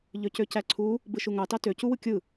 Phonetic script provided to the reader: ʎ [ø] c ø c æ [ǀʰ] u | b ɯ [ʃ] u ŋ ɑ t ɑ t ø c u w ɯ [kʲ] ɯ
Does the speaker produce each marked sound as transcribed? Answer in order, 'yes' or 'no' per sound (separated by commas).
yes, yes, yes, yes